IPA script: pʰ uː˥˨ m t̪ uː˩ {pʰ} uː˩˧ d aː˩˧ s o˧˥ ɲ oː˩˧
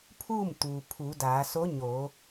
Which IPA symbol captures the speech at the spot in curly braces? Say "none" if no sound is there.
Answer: pʰ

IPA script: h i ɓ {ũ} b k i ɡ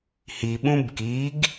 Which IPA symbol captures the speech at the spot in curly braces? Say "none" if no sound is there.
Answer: ũ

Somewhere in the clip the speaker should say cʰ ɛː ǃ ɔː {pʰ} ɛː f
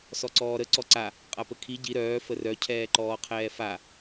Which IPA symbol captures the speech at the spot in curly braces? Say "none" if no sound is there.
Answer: qʰ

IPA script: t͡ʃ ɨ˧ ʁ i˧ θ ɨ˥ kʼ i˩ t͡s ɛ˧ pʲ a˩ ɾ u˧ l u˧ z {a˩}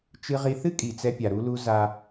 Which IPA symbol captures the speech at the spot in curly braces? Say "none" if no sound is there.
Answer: a˧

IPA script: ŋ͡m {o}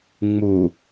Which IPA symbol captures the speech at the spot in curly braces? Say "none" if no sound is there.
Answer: u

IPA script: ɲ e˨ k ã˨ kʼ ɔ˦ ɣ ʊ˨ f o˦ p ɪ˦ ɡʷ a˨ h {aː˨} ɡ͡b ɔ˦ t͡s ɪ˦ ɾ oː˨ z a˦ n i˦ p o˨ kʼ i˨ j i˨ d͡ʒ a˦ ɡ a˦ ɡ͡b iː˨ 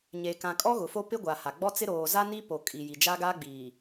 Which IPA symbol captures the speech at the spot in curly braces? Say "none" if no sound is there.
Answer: a˨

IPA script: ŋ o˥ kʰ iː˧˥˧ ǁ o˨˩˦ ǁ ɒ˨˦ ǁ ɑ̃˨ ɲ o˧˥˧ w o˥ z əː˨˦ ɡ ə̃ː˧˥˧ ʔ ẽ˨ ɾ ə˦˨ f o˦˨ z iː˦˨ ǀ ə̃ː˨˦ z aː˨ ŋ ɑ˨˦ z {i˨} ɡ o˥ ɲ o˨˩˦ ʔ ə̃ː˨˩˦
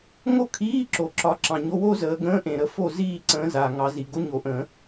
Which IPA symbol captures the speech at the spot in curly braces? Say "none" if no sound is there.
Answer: i˨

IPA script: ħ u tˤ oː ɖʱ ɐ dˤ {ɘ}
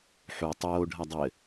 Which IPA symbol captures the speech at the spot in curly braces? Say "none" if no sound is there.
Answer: ɘ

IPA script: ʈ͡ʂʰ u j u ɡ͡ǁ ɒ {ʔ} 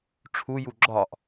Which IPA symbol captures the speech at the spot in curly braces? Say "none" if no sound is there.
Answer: ʔ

